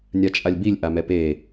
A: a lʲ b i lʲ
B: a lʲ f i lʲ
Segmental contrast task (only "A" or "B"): A